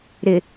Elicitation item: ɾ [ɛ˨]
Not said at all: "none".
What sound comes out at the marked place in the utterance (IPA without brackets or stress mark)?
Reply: ɪ˨